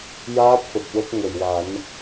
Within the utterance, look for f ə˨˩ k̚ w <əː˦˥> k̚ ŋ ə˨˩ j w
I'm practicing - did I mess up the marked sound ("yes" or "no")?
yes